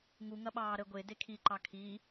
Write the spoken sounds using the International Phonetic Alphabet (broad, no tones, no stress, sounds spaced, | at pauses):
ŋ u ŋ ɐ ɓ ɑː ɾ ə ɡʷ e d e kʰ i ǃ ɑ kʰ i